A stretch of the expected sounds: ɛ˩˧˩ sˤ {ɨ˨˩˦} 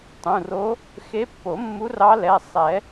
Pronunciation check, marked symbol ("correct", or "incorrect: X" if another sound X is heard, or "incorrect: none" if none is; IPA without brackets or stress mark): incorrect: ɛ˨˩˦